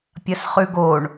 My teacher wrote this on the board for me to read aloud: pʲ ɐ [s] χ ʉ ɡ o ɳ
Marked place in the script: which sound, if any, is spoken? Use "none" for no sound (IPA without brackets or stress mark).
s